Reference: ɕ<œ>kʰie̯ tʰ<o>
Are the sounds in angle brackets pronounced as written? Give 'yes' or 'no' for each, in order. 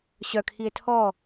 yes, no

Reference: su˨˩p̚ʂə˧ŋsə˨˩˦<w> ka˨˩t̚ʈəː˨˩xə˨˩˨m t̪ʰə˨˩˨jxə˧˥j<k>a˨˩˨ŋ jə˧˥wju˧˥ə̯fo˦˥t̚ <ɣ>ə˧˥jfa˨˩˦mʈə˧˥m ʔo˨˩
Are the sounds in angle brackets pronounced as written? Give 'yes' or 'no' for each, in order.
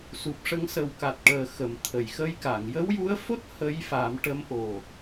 yes, yes, no

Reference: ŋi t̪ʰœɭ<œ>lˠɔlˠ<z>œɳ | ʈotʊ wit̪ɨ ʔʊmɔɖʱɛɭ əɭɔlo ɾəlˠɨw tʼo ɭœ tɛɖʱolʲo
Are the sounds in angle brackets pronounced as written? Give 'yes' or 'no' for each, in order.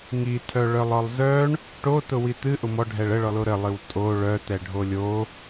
yes, yes

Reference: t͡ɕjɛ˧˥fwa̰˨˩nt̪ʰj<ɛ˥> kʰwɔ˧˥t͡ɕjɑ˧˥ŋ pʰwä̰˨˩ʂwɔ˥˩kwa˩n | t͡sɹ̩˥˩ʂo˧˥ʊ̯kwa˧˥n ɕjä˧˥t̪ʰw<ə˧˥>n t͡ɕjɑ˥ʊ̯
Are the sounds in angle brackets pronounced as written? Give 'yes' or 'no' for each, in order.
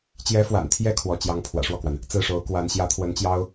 no, yes

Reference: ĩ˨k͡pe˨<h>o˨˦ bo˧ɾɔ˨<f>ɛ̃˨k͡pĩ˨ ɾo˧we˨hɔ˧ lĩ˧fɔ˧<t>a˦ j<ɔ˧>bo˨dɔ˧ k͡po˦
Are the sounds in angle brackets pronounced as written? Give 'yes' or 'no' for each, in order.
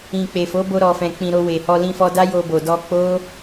no, yes, no, no

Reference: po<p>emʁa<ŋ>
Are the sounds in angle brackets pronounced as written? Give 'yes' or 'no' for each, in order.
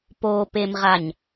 yes, no

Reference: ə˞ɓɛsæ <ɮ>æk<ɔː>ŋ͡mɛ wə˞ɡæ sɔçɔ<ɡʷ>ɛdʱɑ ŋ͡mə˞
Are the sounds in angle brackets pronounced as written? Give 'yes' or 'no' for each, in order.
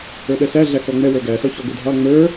yes, no, yes

